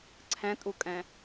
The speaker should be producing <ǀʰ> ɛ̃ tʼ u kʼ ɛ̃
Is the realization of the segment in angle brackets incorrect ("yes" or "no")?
no